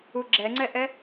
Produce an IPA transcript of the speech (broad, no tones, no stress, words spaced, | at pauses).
uɡ͡ǁɛŋ͡ǀɛʔɛ